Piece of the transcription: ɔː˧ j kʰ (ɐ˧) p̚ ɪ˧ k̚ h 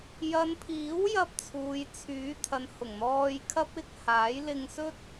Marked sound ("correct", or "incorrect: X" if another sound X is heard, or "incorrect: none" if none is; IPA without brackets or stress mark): incorrect: ɐ˥